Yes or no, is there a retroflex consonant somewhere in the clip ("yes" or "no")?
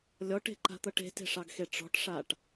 yes